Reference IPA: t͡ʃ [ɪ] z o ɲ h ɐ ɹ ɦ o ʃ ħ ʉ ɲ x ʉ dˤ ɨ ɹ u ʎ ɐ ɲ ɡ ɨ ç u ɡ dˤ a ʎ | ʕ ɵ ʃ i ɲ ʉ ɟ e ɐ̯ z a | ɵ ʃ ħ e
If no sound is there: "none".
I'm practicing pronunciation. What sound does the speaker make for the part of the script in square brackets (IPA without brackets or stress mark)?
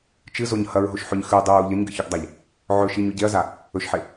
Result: ɨ